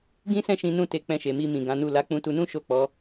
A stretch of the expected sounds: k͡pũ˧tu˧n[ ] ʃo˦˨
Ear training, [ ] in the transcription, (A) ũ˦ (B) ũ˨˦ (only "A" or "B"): A